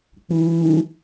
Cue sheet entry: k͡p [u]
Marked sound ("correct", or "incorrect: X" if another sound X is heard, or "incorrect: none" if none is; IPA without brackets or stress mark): incorrect: uː